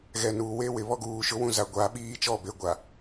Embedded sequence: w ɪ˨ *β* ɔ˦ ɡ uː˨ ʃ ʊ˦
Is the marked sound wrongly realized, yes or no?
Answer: no